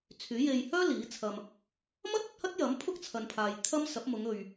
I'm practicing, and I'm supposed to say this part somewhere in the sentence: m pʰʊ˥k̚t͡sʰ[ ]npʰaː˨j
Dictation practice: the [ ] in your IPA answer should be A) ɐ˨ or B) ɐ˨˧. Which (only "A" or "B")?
A